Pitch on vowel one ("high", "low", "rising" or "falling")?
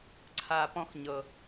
low